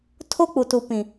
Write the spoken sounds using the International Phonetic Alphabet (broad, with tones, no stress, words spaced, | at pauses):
tʰo˦k͡pu˨tu˨ pĩ˨